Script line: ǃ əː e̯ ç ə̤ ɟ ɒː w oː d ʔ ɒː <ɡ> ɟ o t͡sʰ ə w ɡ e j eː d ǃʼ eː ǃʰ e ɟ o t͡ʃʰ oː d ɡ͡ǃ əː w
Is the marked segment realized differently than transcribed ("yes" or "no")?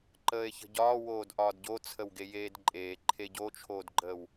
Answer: yes